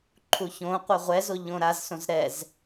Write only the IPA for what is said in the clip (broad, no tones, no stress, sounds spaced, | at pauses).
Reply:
ǃʰ u ç õ qʷ œ ʁʷ ɛ z o ʎ õ ɾ a z s õ z ɾ ɛ z